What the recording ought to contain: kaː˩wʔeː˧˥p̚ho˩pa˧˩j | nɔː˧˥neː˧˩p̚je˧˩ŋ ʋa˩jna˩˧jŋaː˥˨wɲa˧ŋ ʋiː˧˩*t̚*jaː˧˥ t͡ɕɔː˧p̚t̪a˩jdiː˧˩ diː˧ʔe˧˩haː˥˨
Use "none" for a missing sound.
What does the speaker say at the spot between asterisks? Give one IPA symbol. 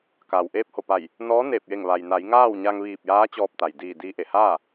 p̚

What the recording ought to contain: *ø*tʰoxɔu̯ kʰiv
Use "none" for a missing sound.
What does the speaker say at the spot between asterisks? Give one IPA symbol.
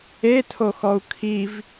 e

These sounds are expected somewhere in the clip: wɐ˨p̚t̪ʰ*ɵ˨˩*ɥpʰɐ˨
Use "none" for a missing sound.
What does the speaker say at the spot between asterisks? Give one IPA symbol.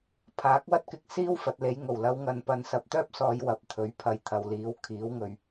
ɵ˨˥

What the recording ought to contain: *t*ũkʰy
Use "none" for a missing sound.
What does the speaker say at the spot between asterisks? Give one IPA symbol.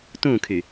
t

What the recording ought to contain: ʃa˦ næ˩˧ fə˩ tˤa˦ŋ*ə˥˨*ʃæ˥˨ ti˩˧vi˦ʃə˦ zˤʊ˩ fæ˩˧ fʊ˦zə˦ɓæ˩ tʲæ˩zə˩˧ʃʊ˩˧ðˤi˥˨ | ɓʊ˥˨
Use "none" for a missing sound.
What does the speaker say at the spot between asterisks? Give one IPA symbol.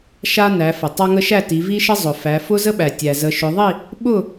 ə˦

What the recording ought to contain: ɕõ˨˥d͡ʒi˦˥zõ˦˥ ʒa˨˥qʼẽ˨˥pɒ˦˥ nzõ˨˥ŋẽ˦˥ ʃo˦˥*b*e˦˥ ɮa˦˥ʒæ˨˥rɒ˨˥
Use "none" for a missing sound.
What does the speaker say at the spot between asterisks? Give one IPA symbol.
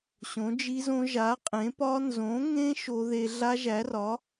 ð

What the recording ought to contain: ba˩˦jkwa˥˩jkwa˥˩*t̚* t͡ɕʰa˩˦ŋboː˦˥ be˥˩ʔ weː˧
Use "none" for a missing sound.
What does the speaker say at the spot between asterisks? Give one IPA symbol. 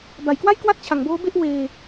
t̚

